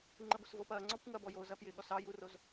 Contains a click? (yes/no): yes